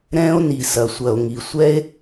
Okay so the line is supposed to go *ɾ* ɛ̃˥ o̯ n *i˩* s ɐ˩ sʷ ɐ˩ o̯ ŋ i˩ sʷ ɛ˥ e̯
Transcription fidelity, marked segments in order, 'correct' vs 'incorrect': correct, correct

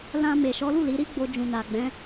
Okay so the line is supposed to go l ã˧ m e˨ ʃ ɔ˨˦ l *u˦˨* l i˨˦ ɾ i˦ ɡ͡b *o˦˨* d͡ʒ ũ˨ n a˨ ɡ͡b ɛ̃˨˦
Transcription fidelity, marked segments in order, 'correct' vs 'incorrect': correct, incorrect: o˧

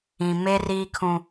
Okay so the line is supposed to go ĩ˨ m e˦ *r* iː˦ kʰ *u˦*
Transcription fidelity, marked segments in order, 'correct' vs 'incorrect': correct, incorrect: ũ˦

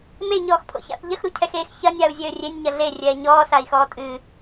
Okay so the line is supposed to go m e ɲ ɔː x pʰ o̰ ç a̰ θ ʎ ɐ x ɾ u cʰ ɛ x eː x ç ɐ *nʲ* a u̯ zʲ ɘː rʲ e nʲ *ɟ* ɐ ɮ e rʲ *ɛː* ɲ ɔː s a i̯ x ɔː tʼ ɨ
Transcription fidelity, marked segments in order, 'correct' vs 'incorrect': correct, incorrect: ɲ, correct

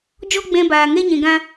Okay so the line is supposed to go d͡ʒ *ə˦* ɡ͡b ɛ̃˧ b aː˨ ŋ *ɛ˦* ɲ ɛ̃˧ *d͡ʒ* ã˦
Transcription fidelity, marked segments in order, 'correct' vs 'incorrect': incorrect: ɔ˦, correct, incorrect: ɡ

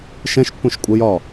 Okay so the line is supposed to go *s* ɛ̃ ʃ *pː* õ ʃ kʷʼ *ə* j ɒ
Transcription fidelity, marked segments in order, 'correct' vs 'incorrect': incorrect: ʃ, correct, correct

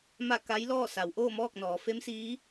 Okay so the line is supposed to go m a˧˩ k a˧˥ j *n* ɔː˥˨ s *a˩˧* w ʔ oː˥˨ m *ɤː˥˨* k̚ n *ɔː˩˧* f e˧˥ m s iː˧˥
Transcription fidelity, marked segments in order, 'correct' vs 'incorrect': incorrect: l, correct, incorrect: ɔː˥˨, correct

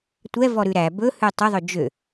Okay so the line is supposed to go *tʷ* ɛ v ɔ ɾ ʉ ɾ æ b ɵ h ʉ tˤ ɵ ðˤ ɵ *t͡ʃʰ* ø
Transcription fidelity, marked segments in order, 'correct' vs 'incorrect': correct, incorrect: d͡ʒ

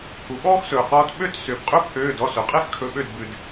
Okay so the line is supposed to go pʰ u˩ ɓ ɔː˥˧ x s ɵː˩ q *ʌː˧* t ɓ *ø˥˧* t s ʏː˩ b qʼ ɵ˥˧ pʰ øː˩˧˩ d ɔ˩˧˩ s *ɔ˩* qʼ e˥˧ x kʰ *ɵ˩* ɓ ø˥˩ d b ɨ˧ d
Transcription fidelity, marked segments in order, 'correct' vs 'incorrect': incorrect: ɔː˧, correct, incorrect: ɵ˩, incorrect: ɵ˩˧˩

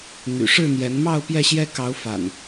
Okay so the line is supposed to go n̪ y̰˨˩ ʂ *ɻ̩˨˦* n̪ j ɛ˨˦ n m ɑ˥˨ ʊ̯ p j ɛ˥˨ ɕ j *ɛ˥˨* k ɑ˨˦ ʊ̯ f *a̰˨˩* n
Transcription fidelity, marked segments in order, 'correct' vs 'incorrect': incorrect: ɻ̩˥˨, incorrect: ɛ˦, correct

